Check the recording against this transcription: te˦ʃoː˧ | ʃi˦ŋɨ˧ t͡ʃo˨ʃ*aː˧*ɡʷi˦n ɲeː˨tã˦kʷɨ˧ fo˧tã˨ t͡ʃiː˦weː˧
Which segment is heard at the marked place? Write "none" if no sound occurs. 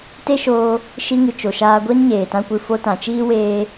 aː˧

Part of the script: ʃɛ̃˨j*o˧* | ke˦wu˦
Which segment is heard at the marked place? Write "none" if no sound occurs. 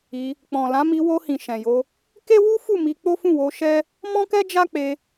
o˧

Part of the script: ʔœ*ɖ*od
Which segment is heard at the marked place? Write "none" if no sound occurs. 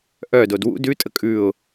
d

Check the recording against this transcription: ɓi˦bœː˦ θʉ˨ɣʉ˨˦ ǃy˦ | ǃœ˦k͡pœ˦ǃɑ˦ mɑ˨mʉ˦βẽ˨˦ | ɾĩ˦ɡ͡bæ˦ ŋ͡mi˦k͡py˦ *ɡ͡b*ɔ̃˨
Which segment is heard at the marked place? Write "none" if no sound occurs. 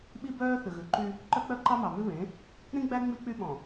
ɓ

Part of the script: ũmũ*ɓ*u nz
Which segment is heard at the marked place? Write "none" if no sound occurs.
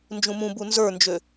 b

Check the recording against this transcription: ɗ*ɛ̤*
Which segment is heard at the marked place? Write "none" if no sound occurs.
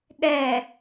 ɛ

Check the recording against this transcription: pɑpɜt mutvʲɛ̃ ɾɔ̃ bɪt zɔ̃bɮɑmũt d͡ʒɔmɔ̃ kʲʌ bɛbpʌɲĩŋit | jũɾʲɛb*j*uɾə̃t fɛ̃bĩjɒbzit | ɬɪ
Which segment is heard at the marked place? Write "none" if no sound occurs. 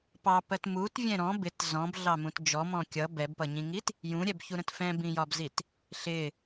ç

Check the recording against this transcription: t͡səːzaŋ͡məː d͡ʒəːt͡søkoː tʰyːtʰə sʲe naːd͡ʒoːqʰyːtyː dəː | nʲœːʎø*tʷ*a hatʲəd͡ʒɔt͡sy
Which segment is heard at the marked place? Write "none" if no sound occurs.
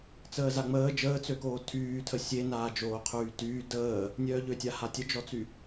tʲ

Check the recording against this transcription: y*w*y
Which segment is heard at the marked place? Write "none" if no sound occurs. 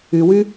w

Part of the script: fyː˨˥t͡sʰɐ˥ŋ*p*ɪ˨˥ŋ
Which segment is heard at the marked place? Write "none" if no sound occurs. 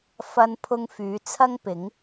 p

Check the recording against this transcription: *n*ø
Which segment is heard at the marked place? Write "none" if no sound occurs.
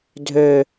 dʱ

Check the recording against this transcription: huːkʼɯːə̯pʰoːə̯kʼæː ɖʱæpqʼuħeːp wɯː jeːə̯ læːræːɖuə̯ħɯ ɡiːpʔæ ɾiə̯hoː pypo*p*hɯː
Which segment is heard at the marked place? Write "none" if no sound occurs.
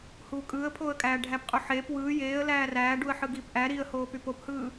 p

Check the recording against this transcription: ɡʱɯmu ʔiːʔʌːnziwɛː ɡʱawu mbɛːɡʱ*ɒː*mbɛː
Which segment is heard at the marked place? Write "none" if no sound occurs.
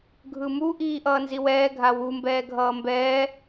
ʌː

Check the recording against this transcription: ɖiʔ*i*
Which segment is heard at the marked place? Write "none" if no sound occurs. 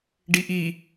i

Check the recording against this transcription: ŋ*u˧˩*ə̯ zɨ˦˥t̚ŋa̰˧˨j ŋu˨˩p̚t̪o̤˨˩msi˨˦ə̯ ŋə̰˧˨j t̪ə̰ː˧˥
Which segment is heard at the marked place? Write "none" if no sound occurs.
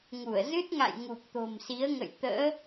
u˧˩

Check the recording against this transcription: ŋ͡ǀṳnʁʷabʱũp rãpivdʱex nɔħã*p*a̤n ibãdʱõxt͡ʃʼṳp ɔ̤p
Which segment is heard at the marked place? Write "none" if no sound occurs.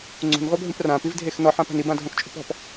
p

